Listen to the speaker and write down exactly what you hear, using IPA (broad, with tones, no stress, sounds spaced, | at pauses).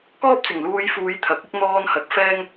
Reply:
k ɔː˥ p̚ t͡s ɪ˨˩ ŋ l uː˧ j f uː˨˧ j t̪ʰ ɐ˨˥ k̚ ɪ˥ k̚ n̪ ɔː˧ n h ɐ˨˥ k̚ f ɛː˥ ŋ